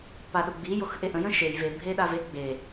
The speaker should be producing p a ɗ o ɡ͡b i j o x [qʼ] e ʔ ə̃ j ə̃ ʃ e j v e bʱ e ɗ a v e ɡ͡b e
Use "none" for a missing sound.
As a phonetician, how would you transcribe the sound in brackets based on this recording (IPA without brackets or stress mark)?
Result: ʔ